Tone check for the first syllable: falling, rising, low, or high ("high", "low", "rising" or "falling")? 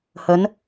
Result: rising